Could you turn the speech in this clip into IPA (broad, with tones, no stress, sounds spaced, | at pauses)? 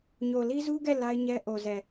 ɲ o˨ l i˦ z u˦ ɡ ɛ˦˨ l a˦ ɪ̯ ɲ ɛ˦ ʔ o˨ z ɛ˨